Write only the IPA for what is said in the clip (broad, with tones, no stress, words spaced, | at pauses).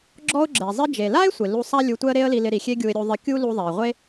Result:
ɡ͡ǁɔ˧ʊ̯ɡ͡ǁɛ˩zˤɪ˧ d͡ʒe˩la˥ɪ̯sʷɪ˩ lu˧ sˤa˥ lʲu˧tʷɛ˥ə̯ɾe˥ə̯li˧ lɪ˧ɾi˩xʲe˥ ɡʲu˧ɪ̯ɾʲu˧ ðˤɪ˧kʲu˥ lu˧ðˤɛ˩ɪ̯ʁʷe˥